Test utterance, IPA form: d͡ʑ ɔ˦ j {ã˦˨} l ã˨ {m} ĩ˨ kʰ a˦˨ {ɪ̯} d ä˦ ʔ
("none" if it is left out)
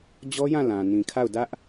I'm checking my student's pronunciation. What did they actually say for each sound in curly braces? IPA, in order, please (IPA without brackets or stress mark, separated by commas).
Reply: ã˦˨, n, ʊ̯